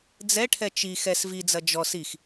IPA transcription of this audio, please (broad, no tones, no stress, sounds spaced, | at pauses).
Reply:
d͡z ɛ ʈʰ ɛ t͡ʃ i x ɛ s v i d͡z ɐ d͡ʒ ɔ s i x